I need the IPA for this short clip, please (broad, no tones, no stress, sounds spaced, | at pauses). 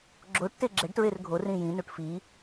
ɡ͡ǁ o ʈ t e ɡ͡ǁ ɛ ɖ t ɹ e r ɡʱ o r ĩ j ĩ n u ʈ f i